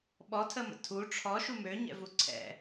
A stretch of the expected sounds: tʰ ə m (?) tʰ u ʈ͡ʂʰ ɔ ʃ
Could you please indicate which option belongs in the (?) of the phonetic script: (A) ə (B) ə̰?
B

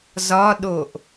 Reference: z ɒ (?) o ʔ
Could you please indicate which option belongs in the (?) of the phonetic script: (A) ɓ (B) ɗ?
B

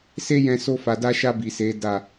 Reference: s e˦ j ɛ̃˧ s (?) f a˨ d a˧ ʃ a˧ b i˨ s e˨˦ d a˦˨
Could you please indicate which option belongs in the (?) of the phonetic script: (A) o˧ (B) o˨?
A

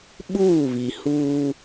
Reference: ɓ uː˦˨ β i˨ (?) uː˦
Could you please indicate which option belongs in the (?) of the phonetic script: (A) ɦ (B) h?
B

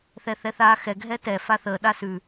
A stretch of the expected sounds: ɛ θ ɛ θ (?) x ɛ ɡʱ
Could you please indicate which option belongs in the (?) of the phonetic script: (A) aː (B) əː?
A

